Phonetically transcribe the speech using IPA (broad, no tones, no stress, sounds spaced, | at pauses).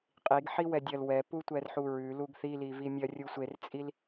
qʼ i ɡ ħ i w ɛ dʲ ɐ l w ɛ p u tʷ ɛ r ħ u ɹ ʉ l u ɡ θ i l i v i mʲ ɐ rʲ u sʷ e r t͡sʼ i l